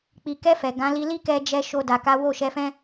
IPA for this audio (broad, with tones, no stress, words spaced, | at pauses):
k͡pi˨kɛ˧ fɛ˨ɡã˨˦ li˧li˦kɛ˧d͡ʒɛ˧ ʃo˧da˨ ka˨˦wo˦˨ʃɛ˧fɛ̃˦